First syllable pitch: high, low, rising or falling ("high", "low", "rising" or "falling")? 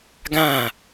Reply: falling